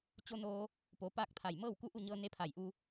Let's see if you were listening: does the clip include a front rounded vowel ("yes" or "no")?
no